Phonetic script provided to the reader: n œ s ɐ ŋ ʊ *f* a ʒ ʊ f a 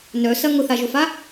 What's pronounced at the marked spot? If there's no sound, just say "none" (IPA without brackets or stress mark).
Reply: θ